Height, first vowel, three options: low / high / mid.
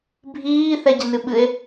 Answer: high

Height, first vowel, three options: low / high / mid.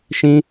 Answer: high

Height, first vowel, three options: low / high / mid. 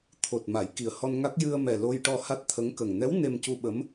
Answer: mid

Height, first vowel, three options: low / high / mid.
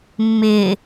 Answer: high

